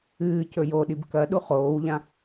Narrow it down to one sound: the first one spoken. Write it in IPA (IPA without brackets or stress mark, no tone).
ɨː